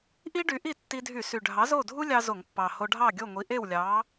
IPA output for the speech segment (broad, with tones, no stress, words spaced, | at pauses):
ʔi˥ɖy˨˥ʔi˥˨ tːi˧dʱy˧˩˧sy˨˩ ɖʱɑ˨˥zo˥˨dʱu˥ lʲɑ˥zo˧˩˧ŋpːɑ˨˩ ho˧ɖʱɑ˥˨ɡʲo˥˨ŋʷi˨˥ ʔe˥˨wlʲɑ˨˥